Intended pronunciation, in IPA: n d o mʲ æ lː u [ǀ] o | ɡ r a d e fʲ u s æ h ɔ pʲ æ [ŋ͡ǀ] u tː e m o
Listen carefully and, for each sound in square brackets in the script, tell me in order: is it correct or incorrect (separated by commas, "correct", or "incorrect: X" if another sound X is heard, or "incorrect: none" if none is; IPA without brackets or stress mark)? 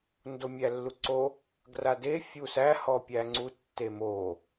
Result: correct, correct